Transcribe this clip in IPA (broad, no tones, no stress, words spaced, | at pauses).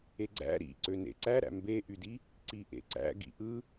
eɡ͡ǀæ̰ ɾḭ ǀønḛǀæɾæ̰ mbeʔydi | ǀiʔḛǀæ̰ ɡḭʔɯ